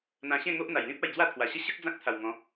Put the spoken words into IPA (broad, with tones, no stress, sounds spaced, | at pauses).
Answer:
n̪ ã˧ ɕ ẽ˥˧ ŋ o˦ ʔ n̪ a˨˩ j l ĩ˦ p̚ a˥˧ j d͡z w a˥˧ t̪ʰ w a˨˩ ɕ ə˥˧ ɕ ə˦ k̚ d͡z ã˦ k̚ t̪ʰ a˨˩ w ŋ ɔ̃˨˦